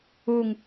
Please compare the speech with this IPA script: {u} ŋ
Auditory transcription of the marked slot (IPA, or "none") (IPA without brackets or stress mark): u